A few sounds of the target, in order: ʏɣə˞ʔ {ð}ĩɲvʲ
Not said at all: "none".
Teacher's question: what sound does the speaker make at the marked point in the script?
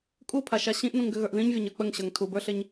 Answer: ð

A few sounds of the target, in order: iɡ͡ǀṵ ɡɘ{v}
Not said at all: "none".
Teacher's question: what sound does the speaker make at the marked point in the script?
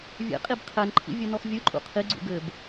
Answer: b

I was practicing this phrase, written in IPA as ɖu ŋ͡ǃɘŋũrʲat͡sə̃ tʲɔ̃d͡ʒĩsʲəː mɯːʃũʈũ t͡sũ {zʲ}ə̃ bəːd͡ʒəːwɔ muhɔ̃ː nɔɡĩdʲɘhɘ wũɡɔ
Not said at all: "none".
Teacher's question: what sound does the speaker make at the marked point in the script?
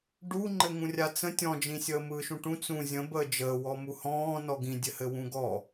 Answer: zʲ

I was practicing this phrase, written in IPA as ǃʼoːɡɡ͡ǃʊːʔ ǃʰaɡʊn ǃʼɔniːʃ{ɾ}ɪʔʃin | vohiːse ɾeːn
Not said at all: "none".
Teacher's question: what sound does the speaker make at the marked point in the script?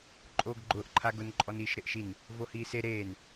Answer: ɾ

